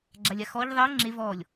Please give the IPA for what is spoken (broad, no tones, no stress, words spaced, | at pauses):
ɡ͡ǁalʲaxɔʎ ðˤɛə̯ ŋ͡ǁe vɔlʲ